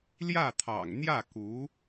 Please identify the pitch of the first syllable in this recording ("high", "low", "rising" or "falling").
falling